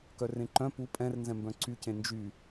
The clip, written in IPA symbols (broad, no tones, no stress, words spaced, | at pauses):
kœrẽǃœ̃ pu pʼɛ̃rnzɛ̃mbœ̃ ǀycẽ nd͡ʒy